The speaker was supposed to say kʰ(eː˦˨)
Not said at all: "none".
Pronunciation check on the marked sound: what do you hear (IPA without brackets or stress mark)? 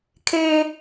eː˦